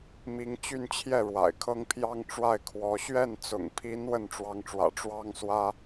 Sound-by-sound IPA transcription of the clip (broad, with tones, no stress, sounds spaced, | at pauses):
m i˧˥ ŋ t͡ɕ y˥˧ n t͡ɕʰ j ɛ˥˩ ɻ w a̰˨˩ ɪ̯ kʰ ɤ˥ ŋ pʰ j ɑ˥ ŋ ʈ͡ʂ w a˥˩ ɪ̯ kʰ w ɔ˧˥ ɕ ɥ ɛ˥˩ n t͡s ʊ̰˨˩ ŋ pʰ i˧˥ n w ə˥˩ n ʈ͡ʂ w ɑ˧˥ ŋ ʈ͡ʂ w ä̰˨˩ ʈ͡ʂ w ɑ˥ ŋ s w ä˥